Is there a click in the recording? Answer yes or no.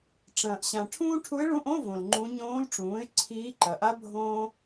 yes